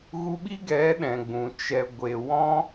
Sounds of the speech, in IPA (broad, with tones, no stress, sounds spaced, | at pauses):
ɣ u˧ ɓ i˦ ɡ ɛ˨˦ ɗ ɛ̃˨ ɡ͡b ũ˨ t͡ʃ ɛ˧ ɡʷ e˨ w ɔ̃˦